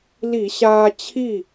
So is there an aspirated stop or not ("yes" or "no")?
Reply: yes